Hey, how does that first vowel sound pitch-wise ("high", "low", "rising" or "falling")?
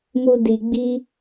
high